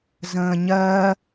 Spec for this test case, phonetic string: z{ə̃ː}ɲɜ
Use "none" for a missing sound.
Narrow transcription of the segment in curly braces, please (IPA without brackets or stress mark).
ə̃ː